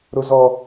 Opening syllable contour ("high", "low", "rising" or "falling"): high